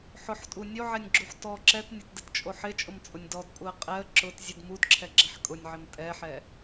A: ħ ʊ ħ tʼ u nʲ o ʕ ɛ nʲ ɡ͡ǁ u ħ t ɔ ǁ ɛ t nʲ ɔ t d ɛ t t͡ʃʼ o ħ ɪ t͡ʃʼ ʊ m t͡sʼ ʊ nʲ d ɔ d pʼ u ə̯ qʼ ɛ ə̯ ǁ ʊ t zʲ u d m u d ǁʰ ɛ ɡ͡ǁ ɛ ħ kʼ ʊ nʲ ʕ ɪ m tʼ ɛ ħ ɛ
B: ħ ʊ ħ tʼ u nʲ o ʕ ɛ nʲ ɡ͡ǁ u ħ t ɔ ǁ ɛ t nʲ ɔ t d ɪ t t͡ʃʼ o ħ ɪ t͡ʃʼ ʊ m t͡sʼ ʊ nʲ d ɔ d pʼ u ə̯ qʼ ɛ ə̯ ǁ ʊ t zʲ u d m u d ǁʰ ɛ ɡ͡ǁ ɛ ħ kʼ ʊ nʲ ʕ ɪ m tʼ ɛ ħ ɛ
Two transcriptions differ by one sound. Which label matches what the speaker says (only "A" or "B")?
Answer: B